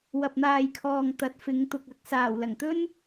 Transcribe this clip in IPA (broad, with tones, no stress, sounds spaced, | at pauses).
w ɐ˨ p̚ n̪ aː˨ j kʰ ɔː˨ ŋ t̪ ɐ˨˥ t̚ f ɪ˨˧ ŋ t̪ ʊ˨ k̚ ɐ˨˥ k̚ s aː˨˩ w l ɐ˨˩ ŋ t̪ ɵ˥ n